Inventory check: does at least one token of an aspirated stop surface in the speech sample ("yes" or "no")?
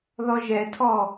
yes